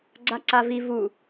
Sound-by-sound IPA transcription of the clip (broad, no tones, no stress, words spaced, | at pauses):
ɡ͡ǀaǀavi vu